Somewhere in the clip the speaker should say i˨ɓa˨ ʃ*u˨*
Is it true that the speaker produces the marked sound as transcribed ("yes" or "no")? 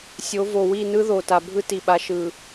no